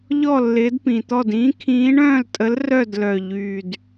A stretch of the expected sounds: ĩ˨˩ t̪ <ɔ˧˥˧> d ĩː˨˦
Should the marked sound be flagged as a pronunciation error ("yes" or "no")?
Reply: yes